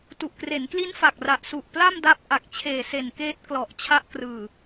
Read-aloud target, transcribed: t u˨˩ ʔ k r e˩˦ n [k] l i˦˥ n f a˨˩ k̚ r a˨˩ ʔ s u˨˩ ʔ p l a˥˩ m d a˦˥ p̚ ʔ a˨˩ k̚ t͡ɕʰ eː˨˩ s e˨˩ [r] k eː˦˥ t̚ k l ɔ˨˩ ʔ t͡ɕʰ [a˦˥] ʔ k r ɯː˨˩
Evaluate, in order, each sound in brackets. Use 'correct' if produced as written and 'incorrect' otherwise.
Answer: correct, incorrect, correct

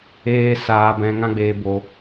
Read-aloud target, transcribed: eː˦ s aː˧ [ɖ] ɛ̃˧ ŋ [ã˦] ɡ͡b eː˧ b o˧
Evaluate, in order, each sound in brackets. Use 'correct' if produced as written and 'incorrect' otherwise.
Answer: incorrect, correct

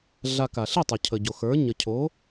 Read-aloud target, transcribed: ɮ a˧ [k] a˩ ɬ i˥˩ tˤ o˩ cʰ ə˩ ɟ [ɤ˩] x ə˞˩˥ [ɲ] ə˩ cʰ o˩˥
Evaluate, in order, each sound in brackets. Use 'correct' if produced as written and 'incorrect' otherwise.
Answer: correct, incorrect, correct

